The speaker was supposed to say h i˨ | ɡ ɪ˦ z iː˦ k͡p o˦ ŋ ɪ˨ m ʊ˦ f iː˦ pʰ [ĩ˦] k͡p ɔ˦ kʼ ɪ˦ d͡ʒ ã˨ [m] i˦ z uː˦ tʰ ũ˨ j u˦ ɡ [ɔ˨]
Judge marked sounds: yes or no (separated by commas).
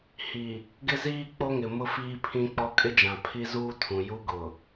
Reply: yes, no, no